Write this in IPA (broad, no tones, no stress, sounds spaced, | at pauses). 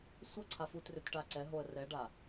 sʷ ə ǀʰ a f u t r ʏ t ʈ a ǀ ɛ ɦ o ə̯ r ɛ ɖ a